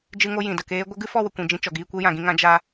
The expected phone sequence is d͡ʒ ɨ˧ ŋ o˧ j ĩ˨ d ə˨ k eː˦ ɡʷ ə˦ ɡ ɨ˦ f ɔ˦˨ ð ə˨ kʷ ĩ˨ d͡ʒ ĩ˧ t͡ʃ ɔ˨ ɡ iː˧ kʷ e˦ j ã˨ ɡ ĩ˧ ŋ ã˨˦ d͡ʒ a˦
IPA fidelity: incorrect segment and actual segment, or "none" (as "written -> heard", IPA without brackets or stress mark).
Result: ð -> w